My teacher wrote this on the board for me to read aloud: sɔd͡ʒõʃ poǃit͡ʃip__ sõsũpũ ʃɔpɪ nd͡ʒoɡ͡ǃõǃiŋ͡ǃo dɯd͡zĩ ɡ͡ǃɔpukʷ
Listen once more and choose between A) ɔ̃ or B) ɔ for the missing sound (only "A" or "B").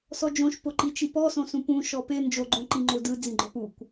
B